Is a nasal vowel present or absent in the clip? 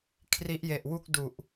absent